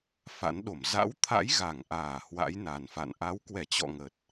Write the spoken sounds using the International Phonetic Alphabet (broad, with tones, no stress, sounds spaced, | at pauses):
f a̰˧˥ n ɗ o˧˩ m z a̰˧˥ w t̪ʰ a̰˧˥ j ɣ a˧˩ ŋ ʔ aː˧˩ h w a̰˧˥ j n a˨˩ n f a̰˧˨ n ʔ a˨˦ w k w ɛ˧˩ t͡ɕ ɔ̰˧˨ ŋ ə˨˩ t̚